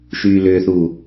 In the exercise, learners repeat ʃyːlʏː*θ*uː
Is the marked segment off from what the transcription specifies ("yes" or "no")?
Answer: no